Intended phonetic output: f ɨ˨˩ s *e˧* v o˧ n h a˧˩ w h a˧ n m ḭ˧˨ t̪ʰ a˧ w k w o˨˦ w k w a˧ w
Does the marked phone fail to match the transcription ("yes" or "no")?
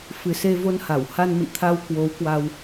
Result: no